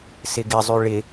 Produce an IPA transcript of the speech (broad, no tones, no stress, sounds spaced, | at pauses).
s ɪ ɡ ɪ zˤ y ɭ ɪ